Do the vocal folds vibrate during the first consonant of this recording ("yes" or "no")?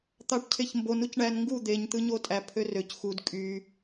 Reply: no